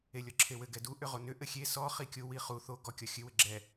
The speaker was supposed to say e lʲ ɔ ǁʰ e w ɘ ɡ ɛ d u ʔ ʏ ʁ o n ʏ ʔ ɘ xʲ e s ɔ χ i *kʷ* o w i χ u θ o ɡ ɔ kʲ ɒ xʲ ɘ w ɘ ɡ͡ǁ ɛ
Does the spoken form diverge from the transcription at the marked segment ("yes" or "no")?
yes